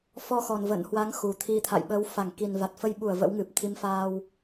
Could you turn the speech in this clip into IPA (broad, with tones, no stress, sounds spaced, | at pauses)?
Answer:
f ɔ˧ x ɔ˨˩ n v ə̰˧˨ n h w a˨˦ ŋ x u˨˩ t̪ʰ i˧ t̪ʰ a̰˧˨ j ɓ əː˨˦ w f a˧˩ ŋ k i˨˩ n v a˨˩ t̚ f ə˧ j ɓ u˧˩ ə̯ v ə̰˧˥ w ŋ ɨ˨˩ p̚ t̪ʰ i˨˦ m f a˧ w